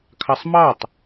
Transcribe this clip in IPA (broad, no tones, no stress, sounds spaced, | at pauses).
kʰ ɑ sˤ m ɑ tˤ